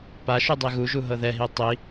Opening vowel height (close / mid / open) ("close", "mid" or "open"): open